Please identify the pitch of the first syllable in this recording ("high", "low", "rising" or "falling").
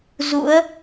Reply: rising